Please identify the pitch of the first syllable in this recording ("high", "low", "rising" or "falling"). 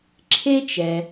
high